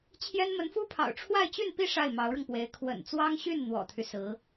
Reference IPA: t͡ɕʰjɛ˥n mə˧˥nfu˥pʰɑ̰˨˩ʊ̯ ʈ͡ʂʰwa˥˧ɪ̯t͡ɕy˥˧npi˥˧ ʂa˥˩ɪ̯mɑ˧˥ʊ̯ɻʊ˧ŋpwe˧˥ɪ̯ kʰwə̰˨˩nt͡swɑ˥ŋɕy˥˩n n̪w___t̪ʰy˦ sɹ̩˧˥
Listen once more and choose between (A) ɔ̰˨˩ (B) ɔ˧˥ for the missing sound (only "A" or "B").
A